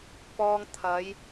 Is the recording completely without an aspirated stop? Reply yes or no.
no